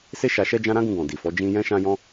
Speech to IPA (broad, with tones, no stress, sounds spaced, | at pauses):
s e˦ ʃ a˧ ʃ ɛ˦ d͡ʒ ã˦ ɾ ã˦ ɡ ũ˧ ɡ ɔ̃˨ d i˨ f ɔ˨˦ d͡ʒ ĩ˦ j ɛ̃˦ ʃ ã˦ j ɔ̃˦